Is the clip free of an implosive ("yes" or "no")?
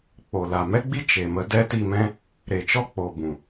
yes